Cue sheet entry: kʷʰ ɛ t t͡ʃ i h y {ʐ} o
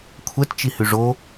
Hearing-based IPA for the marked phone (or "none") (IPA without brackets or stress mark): ʐ